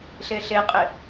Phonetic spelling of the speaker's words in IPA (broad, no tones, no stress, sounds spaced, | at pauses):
ɬ e ɬ e qʼ ɪ